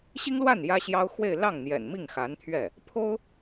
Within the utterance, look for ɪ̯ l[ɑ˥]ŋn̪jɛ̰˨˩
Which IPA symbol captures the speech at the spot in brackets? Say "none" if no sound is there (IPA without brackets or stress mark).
ɑ˥˩